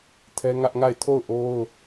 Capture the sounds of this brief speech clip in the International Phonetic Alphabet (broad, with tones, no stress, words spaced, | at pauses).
tʰɛ˦ŋä˦ʔŋa˦˨ɪ̯ tʰo˦˨ʊ̯ʔo˦ʊ̯